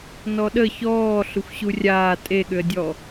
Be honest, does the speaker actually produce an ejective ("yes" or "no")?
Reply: yes